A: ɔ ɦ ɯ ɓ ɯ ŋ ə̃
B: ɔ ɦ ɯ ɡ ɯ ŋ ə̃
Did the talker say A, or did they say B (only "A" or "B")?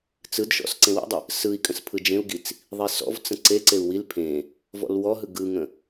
B